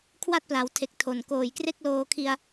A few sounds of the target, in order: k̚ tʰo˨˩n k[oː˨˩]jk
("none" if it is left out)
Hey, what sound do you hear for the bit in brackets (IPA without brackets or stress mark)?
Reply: oː˨˩